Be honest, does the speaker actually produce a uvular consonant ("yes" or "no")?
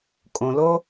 no